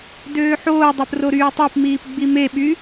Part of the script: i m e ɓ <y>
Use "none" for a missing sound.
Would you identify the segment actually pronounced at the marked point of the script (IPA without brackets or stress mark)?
y